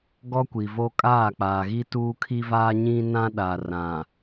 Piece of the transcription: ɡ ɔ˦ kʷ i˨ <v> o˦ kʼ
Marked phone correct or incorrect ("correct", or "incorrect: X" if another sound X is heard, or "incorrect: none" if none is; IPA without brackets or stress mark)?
correct